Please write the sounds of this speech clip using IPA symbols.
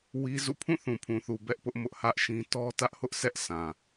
w i˦ z ṵ˦˨ pʰ ũ˦˨ θ ũ˨ pʰ ũ˨ θ u˨ b ɛ˦ ʔ p ʊ˦ ʔ m ʊ˦ ʔ h ä˦ ʔ ʃ ĩ˦ t ɔ˦ t ä˦ ʔ h ʊ˦ ʔ sʰ ɛ˦ ʔ sʰ ã˨

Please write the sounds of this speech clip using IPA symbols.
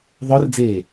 ðˤ œ r d͡z eː

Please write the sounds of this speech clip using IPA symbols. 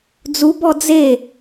d͡z u b ɔ d͡z e

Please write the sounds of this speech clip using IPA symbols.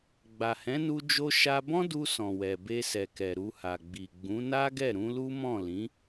ɡ͡b a˨ h ɛ̃˨˦ n u˧ d͡ʒ o˧ ʃ a˧ b ɔ̃˦ d u˧ s ɔ̃˨ w ɛ˨ b e˧ s ɛ˨ k ɛ˨ ɾ u˧ h a˨ ɡ͡b i˨ ɡ͡b ũ˨˦ n a˦ ɡ ɛ˦˨ ɾ ũ˨˦ l u˦ m ɔ̃˦˨ l ĩ˨˦

